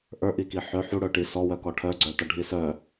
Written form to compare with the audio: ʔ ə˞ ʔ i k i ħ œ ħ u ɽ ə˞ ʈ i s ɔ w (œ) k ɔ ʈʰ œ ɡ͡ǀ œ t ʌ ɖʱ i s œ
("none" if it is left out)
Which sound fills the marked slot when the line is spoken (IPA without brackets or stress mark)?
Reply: œ